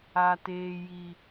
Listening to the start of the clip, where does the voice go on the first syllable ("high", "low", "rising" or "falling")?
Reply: high